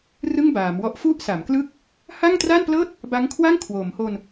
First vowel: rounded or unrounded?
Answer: unrounded